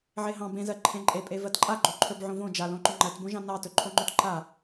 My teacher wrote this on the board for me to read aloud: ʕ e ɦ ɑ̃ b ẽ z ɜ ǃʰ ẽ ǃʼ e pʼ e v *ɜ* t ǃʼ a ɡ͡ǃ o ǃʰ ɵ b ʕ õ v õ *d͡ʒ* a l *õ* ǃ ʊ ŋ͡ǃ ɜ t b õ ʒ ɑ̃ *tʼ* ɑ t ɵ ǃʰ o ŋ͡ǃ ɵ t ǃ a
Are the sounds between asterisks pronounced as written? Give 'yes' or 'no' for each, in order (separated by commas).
yes, yes, yes, no